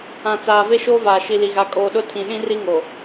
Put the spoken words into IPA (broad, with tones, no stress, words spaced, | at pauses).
ã˨ t͡saː˨ve˦ʃoː˦ vaː˨ʃi˨li˨ɣa˨˦ kʼoː˨ɗʊ˦ tʰĩ˨ɗĩ˦ri˦ŋo˨